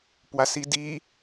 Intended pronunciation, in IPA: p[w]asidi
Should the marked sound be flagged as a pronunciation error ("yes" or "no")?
no